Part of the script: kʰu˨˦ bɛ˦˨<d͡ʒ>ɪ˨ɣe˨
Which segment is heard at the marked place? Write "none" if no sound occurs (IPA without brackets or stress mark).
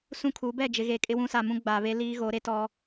d͡ʒ